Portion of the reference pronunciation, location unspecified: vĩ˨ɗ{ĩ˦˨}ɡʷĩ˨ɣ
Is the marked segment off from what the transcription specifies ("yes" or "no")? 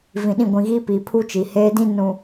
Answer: no